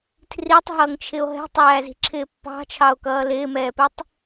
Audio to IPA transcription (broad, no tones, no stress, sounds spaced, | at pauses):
tʰ r i tˤ ɦ ʌː ŋ t͡ʃʰ ɪ o̯ ɦ ɛ̤ tˤ æː z i̤ ǁʰ ɪː pː ɑ̤ t͡ʃʰ ɑ o̯ k ʌː l ɪː m ɛː p ɛ tˤ